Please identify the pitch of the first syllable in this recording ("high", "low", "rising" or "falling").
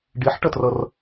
rising